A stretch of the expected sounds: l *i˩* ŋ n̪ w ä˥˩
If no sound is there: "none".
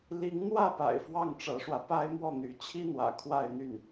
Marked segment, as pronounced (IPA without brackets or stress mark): i˧˥